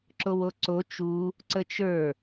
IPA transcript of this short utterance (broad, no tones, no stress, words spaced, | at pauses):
ǁowoǀo t͡ʃu | ǀət͡ʃə˞